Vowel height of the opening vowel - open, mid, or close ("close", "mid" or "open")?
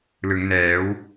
close